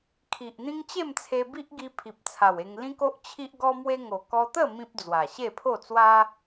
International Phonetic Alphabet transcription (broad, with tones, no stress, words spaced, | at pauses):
kʰi˨ʔn̪ĩ˦ŋ t͡ɕe˥˧mt͡sʰe˧bi˦ʔɡi˧ pʰi˨p̚t͡sʰa˨˩we˧ŋ lĩ˦ko˦ʔ t͡ɕʰi˦ʔɡɔ˦mwe˦ ŋo˨˩ kɔ˧t̪ə˥˧ mĩ˦p̚d͡zwa˨˩ ɕe˥˧pʰo˥˧t͡swa˦